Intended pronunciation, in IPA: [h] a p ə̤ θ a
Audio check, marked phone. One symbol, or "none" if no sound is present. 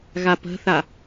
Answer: ɣ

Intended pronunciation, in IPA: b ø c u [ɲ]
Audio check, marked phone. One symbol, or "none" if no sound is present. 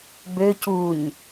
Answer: ɲ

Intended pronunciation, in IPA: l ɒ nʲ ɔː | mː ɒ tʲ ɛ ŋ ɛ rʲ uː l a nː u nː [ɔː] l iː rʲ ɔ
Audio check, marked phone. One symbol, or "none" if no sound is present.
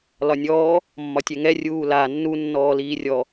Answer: ɔː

